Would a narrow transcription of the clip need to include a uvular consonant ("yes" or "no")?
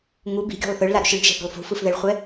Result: yes